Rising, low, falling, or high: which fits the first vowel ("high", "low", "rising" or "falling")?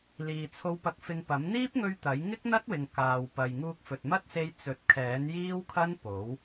low